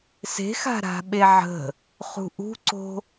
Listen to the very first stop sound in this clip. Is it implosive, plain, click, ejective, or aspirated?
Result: implosive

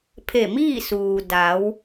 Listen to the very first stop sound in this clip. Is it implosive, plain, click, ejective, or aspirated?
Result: aspirated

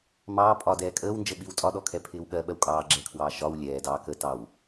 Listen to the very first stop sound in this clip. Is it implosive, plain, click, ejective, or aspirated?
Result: ejective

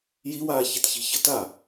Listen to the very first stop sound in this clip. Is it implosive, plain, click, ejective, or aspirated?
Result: plain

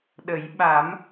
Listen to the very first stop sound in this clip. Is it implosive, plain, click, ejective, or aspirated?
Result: implosive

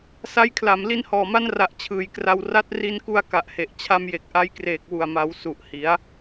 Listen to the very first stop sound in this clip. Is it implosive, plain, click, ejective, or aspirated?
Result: aspirated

